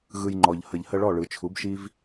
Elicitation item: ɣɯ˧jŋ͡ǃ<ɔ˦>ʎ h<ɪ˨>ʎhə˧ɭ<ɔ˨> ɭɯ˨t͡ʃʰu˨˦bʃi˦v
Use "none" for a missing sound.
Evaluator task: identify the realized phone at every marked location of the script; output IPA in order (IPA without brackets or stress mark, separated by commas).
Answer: ɔ˨, ə˨, ɔ˦˨